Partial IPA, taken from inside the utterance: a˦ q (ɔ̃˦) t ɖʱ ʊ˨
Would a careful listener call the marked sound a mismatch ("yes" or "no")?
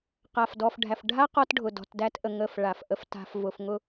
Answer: yes